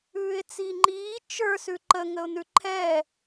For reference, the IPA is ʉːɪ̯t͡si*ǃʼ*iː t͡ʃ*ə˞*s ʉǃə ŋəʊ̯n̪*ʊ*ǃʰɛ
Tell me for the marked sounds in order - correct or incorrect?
incorrect: ŋ͡ǃ, correct, incorrect: ʉ

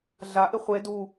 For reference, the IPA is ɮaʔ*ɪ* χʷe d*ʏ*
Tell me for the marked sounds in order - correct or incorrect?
correct, incorrect: u

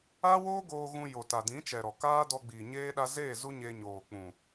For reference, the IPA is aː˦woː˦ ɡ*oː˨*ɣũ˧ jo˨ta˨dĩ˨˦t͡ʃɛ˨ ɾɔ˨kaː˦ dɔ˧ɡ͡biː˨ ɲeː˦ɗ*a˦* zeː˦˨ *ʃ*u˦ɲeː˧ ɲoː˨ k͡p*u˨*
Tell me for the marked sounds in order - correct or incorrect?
incorrect: oː˧, correct, incorrect: z, incorrect: ũ˨

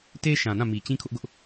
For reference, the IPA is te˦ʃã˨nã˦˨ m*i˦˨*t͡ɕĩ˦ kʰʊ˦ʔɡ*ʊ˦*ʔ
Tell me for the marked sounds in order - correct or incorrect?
incorrect: i˨, correct

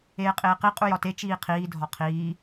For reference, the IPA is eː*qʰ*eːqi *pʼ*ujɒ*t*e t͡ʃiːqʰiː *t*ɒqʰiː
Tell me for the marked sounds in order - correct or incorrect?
incorrect: qʼ, incorrect: qʼ, correct, incorrect: dʱ

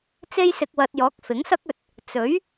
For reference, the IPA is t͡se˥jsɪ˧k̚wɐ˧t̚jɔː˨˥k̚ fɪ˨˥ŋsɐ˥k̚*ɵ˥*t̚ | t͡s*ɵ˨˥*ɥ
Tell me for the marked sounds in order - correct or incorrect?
incorrect: ɵ˧, correct

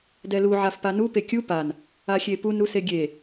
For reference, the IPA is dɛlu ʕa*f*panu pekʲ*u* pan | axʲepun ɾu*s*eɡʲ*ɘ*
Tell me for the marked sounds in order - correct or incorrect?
correct, correct, correct, incorrect: e

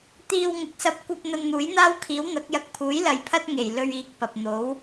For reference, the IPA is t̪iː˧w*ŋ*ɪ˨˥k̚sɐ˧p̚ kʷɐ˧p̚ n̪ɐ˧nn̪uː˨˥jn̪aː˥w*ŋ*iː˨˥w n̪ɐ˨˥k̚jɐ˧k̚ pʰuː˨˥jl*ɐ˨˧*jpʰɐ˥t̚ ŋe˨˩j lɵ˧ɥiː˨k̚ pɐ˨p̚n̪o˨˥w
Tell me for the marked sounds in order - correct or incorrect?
correct, incorrect: kʰ, correct

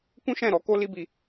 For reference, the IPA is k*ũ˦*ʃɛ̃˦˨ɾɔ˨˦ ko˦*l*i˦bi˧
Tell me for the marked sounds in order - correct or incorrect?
correct, correct

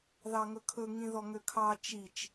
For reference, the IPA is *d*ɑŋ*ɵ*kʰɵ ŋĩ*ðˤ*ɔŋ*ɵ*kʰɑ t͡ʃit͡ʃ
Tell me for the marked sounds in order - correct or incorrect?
incorrect: ð, correct, incorrect: ð, incorrect: ø

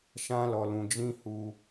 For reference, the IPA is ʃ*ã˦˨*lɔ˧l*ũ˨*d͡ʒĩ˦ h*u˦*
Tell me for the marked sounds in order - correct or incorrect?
incorrect: ã˦, incorrect: ũ˧, correct

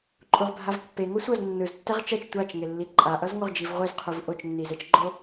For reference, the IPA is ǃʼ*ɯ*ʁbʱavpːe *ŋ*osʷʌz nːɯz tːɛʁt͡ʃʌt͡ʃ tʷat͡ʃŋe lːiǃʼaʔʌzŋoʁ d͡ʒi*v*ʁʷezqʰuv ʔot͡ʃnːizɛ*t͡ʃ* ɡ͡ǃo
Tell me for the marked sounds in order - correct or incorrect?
incorrect: u, correct, correct, correct

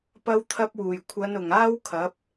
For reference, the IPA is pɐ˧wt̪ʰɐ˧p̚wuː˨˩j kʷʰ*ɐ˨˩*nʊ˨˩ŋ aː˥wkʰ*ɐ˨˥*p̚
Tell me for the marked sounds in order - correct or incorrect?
incorrect: ɐ˨˧, correct

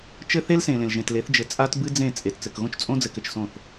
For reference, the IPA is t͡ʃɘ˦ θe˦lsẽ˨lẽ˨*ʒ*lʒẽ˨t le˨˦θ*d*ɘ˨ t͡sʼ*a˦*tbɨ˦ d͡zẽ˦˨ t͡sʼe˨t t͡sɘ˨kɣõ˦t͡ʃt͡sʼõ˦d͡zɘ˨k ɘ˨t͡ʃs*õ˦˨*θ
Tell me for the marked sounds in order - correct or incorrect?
incorrect: none, incorrect: d͡ʒ, correct, correct

